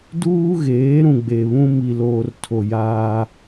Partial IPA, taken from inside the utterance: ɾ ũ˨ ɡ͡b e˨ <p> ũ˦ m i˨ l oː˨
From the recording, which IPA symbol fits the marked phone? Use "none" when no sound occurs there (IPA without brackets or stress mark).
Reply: β